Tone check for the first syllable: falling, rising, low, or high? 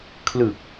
low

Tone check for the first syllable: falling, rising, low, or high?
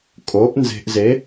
rising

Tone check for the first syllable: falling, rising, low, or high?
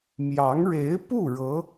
rising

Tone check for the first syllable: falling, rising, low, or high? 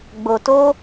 low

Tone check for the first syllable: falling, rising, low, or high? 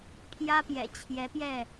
high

